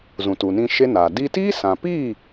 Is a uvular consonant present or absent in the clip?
absent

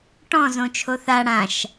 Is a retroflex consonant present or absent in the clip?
present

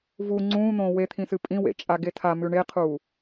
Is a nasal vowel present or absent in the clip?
present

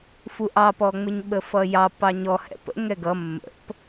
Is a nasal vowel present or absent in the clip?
absent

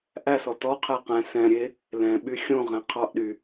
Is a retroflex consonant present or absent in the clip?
absent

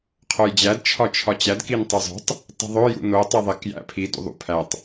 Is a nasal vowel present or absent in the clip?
absent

